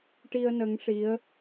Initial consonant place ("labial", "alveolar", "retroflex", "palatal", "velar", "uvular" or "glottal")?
retroflex